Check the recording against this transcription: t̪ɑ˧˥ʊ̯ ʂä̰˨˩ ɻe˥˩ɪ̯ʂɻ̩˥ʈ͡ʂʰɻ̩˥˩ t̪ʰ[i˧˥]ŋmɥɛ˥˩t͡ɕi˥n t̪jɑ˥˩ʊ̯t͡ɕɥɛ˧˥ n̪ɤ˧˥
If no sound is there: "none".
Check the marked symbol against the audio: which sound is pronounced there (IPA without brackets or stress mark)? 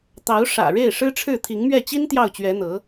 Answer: i˧˥